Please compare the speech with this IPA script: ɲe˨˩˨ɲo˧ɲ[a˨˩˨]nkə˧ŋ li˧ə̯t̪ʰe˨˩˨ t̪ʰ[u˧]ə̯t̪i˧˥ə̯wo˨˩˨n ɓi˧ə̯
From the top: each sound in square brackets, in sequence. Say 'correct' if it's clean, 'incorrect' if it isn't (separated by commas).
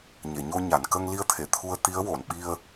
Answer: correct, correct